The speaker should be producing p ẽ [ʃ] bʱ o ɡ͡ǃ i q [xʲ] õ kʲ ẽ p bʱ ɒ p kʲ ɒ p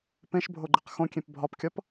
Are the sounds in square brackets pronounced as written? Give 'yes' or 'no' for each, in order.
yes, no

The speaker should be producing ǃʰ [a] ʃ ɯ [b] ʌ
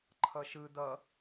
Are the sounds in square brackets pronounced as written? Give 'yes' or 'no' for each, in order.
no, no

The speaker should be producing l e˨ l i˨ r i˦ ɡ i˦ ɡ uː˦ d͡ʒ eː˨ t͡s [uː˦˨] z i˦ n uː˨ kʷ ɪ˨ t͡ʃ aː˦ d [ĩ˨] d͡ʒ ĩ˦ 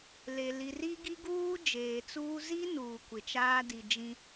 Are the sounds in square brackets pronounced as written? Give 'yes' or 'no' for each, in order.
no, no

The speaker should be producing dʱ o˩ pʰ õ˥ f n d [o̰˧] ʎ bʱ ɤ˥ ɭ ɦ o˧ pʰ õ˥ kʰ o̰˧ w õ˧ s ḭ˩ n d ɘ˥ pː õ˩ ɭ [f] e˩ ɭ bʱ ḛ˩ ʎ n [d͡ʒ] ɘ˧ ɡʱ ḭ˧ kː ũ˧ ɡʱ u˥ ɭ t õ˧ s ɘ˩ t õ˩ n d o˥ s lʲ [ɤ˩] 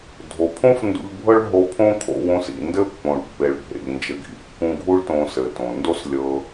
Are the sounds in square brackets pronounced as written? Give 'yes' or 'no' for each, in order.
no, no, yes, no

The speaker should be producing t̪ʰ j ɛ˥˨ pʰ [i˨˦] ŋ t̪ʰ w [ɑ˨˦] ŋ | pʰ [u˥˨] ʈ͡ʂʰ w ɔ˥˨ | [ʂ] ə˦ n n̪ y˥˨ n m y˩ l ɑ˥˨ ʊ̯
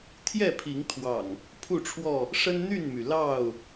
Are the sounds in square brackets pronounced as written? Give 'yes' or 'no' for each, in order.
yes, no, yes, yes

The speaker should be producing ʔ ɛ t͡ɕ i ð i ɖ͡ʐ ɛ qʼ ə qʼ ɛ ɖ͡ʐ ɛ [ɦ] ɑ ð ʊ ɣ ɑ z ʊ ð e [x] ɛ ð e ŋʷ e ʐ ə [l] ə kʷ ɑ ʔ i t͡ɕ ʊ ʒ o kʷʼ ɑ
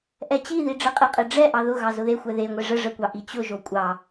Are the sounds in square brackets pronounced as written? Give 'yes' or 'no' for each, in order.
no, no, no

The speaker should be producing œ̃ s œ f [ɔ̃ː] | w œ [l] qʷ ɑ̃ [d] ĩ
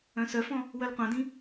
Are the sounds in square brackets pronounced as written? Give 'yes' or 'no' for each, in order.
no, yes, yes

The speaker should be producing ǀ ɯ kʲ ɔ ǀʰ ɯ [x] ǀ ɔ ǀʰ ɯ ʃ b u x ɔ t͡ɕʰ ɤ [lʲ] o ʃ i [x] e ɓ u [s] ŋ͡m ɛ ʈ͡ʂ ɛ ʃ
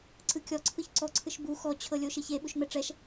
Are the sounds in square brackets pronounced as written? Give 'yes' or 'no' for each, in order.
no, yes, no, no

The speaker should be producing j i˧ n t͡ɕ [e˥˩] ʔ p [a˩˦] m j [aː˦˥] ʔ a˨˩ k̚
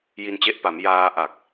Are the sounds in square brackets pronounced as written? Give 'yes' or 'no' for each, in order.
no, yes, no

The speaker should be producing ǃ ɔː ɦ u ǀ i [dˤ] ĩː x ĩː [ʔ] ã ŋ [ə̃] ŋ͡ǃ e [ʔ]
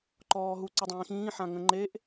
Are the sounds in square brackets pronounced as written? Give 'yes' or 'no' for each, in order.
yes, no, yes, yes

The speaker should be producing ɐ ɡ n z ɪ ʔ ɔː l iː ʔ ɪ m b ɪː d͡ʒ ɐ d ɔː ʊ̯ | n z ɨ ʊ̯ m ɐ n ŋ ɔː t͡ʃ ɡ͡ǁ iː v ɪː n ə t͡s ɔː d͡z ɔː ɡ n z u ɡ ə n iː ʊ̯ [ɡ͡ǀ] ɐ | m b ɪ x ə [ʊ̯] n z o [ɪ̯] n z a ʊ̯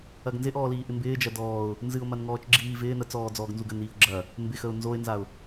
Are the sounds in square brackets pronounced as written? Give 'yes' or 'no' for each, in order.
no, yes, yes

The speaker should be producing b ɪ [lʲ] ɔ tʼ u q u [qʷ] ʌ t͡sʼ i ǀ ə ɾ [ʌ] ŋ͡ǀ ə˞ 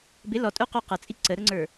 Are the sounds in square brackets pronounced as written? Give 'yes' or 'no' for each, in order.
no, no, no

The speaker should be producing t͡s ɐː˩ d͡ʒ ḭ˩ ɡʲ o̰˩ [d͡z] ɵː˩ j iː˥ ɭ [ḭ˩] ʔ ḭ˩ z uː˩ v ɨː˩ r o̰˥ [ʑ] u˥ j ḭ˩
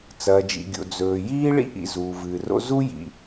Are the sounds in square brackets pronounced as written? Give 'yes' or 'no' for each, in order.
yes, no, no

